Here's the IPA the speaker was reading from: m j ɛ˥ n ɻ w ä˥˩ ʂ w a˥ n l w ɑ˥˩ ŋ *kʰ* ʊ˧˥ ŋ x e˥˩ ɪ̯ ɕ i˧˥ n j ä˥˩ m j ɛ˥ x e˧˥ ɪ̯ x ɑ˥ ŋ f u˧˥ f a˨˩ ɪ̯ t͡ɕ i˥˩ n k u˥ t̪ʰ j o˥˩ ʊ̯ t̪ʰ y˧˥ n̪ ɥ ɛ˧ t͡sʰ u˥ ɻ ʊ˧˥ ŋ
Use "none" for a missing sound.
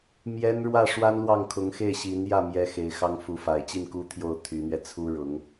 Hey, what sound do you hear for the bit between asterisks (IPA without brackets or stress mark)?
kʰ